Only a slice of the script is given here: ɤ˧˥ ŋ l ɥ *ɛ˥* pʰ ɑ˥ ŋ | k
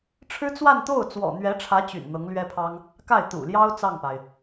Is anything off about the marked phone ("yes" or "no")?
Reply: no